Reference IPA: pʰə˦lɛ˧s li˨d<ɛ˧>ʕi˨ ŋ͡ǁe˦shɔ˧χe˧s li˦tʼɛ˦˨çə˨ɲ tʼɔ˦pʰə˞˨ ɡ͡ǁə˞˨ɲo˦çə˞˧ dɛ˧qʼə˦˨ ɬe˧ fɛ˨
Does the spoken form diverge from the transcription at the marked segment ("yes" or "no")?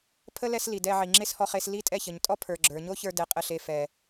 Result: no